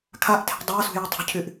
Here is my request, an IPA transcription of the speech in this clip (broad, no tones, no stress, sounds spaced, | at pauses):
kʰ a ʔ tʰ e̤ dˤ a s ṳ j u tˤ ṳ cʰ y ʔ